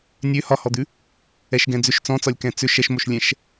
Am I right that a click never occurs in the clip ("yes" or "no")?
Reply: yes